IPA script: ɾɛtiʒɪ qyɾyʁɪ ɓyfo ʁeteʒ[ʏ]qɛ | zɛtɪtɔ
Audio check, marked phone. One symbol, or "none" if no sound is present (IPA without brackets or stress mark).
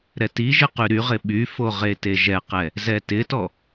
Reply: ɛ